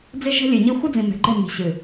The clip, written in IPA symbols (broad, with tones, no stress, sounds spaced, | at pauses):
d͡z e˦ ʒ ɛ̤˦ lʲ ɨ˨ ɲ i˦ xʷ ɨ˦ d͡z ĩ˨ m ɛ̤˨ ɡ͡ǃ ɛ˦˨ m i̤˨ ɕ ɨ˨